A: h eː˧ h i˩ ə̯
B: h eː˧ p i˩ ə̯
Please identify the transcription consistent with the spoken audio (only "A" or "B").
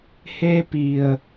B